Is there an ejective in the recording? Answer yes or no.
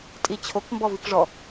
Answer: yes